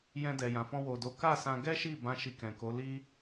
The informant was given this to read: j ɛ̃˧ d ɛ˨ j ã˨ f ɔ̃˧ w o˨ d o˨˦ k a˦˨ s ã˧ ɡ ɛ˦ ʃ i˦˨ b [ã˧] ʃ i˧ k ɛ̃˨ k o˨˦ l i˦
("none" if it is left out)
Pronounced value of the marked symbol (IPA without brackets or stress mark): ã˧